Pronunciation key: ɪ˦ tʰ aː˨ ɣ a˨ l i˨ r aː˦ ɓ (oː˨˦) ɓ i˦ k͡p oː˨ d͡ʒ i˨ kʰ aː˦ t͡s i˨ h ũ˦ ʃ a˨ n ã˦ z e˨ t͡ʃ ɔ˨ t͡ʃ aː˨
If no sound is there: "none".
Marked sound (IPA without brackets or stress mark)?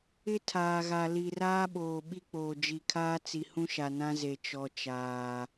oː˨